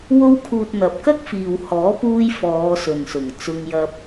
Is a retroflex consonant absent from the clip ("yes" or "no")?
yes